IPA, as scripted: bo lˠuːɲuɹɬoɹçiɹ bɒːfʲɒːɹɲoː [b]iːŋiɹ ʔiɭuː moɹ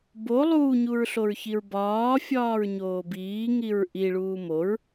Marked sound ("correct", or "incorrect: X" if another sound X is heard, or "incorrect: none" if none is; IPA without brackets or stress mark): correct